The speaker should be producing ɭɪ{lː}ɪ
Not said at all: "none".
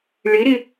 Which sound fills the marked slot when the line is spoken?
ɾ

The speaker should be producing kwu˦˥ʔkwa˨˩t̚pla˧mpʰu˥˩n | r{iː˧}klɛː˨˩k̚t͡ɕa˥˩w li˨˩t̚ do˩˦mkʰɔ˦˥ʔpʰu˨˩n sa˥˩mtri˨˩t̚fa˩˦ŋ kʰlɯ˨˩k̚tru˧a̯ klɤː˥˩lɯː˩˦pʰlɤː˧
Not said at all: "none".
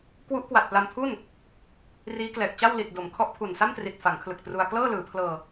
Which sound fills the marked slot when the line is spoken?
iː˦˥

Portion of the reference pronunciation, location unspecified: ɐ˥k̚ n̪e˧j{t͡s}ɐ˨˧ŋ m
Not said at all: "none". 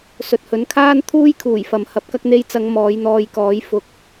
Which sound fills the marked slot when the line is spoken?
t͡s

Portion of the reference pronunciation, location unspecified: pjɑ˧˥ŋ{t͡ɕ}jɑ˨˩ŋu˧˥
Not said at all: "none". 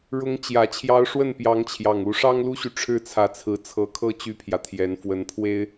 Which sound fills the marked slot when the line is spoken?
t͡ɕʰ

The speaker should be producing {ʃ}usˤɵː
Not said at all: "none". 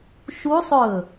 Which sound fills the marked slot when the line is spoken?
ʃ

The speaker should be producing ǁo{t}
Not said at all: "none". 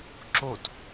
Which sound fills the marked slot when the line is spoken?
t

